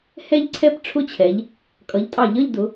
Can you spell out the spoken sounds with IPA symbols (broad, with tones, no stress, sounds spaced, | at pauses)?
h ɛ˥˧ ʎ ǀʰ ɛ˥˧ p ʈ͡ʂʰ ʊ˥˧ t͡ɕʰ ɛ˩˧ ʎ | kʼ ʌ˩˧ ʎ tʼ ɑ˧˩˧ ʎ ʌ˥˧ ʎ d ʊ˩˧